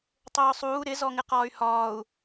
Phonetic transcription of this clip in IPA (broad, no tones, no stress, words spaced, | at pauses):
tˤʊːsˤuː ɾɪzɔŋɪ qɒːy̯hɒːu̯